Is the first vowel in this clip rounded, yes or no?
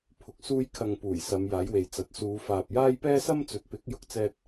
yes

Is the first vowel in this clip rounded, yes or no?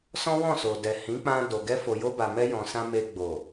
yes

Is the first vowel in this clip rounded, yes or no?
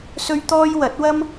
yes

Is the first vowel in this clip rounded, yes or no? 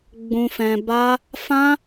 yes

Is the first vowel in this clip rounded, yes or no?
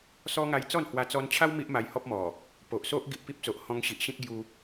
yes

